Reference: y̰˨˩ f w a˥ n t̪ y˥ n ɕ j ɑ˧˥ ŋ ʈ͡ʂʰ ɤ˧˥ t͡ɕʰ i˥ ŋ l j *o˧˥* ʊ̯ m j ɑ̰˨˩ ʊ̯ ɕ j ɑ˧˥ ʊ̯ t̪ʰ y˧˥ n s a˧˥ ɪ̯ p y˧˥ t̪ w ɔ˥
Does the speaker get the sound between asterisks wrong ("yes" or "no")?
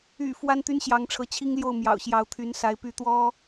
yes